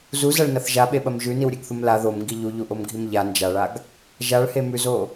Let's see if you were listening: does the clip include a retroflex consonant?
yes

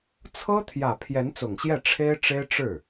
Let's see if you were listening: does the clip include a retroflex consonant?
yes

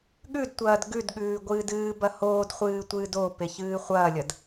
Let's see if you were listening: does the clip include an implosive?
yes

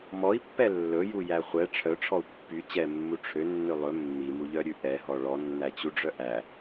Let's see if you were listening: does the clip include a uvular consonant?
yes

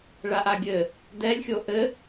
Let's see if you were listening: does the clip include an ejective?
no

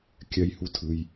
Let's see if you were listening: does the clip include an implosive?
no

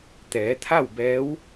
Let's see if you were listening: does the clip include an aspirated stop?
yes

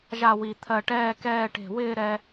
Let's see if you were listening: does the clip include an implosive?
no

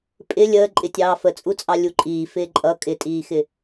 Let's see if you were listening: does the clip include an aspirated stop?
no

